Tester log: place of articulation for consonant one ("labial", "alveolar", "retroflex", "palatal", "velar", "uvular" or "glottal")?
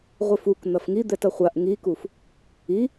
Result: uvular